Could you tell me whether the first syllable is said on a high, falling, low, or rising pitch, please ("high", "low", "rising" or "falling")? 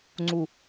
low